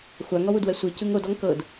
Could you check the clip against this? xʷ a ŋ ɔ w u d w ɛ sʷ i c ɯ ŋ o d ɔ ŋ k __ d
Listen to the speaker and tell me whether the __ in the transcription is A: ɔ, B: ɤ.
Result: B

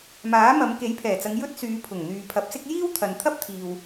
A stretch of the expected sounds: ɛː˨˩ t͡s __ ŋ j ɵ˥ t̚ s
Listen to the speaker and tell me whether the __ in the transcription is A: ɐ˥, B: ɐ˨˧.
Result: B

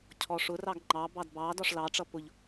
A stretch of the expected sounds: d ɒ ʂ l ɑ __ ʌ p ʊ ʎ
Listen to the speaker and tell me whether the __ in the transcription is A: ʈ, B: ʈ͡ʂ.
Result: B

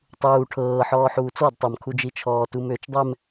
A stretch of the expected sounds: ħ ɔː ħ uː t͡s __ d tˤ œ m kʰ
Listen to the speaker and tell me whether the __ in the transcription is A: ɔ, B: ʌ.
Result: A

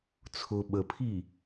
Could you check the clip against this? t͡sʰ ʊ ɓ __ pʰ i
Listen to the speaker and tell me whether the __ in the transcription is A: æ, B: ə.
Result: B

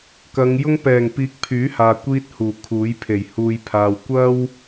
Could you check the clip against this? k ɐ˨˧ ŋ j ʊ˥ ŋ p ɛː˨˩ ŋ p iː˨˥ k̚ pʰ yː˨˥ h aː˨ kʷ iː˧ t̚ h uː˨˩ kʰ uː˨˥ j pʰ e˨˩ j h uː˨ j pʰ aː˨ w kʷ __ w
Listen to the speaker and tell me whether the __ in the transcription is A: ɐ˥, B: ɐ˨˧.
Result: A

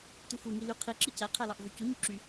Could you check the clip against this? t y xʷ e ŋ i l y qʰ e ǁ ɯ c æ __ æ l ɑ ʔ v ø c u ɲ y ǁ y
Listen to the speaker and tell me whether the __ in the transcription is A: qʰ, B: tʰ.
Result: A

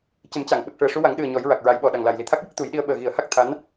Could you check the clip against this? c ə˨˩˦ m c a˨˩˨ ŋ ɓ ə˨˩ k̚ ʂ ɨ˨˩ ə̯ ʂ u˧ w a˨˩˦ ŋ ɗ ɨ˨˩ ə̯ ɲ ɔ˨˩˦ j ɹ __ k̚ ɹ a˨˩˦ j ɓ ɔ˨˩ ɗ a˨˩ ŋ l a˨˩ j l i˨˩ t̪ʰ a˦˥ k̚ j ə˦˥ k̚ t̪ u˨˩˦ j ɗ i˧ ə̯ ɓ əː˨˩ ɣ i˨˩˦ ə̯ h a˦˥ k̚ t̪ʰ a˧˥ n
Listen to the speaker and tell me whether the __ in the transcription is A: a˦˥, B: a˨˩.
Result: B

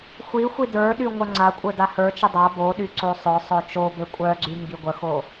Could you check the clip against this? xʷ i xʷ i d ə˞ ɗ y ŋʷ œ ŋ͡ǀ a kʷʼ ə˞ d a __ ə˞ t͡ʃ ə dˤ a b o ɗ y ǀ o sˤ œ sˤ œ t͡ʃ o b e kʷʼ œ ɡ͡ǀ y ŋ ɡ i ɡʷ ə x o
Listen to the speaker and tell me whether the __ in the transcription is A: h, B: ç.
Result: A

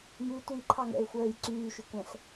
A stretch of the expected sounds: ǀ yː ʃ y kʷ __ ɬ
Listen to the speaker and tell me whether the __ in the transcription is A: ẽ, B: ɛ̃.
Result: B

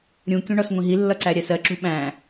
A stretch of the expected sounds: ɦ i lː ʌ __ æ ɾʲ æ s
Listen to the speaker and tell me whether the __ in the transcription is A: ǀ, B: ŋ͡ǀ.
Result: A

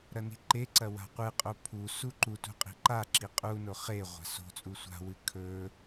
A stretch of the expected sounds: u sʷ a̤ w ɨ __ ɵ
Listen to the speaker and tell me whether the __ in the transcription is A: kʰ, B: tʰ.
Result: A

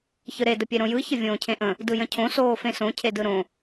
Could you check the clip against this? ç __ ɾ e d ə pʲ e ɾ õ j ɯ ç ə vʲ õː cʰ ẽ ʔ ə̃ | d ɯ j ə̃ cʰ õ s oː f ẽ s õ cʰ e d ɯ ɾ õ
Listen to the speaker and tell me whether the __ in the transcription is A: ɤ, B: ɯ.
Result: B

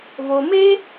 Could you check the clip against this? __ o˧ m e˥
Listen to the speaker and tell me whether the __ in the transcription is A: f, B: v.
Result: B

